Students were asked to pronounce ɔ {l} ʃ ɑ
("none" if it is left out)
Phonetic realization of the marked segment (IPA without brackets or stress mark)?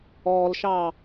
l